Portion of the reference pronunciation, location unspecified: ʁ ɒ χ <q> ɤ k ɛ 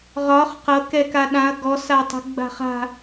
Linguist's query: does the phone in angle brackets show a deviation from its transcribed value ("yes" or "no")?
no